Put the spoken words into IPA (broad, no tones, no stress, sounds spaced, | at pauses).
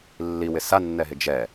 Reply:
lː i w ɪ s a nː ɛ ɦ ɪ d͡ʒ ɛ